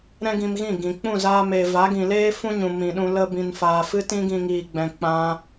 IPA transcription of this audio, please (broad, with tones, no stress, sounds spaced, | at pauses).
ɾ ɛ̃˦ ɡ ĩ˧ m ɣ ĩ˦˨ ɡ ĩ˨ k͡p ũ˦˨ z aː˧ m eː˨ v a˨˦ ɡ ĩ˨ l eː˦ f ũ˦ ɲ ũ˨ m ĩ˨ ɗ ũ˧ l ə˦ b ĩ˧ n f aː˧ f ɨ˦ t ĩ˦ ɡ ĩ˧ ŋ iː˨ ɡ͡b ɛ̃˨ k͡p ã˧